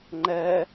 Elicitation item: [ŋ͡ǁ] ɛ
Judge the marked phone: incorrect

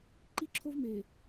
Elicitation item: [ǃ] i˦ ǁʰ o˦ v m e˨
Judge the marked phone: correct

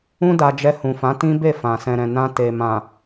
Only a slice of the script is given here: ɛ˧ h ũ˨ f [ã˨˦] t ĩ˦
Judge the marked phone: correct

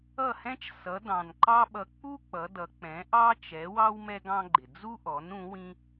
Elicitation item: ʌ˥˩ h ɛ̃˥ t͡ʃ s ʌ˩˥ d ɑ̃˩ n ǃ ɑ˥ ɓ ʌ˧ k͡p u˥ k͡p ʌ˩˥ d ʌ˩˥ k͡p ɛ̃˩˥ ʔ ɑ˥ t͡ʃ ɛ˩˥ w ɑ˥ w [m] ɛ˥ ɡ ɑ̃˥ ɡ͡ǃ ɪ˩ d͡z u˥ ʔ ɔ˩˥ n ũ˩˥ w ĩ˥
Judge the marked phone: correct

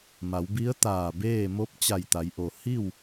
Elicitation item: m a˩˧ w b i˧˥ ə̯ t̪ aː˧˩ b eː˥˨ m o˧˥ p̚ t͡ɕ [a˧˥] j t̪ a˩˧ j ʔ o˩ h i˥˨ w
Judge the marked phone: incorrect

